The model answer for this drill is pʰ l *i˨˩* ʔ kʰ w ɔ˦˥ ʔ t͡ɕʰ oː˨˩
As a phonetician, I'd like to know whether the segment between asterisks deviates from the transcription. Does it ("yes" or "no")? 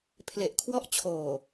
yes